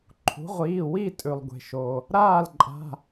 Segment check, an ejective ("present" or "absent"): present